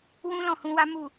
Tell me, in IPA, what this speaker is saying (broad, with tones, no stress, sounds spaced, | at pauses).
w ũ˦ l ɔ̃˦˨ h ũ˧ w a˦ m u˦˨